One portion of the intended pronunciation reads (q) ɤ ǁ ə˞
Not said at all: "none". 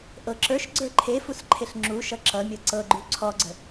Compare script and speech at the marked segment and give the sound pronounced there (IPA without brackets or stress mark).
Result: ʔ